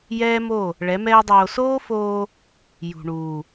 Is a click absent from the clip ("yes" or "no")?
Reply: yes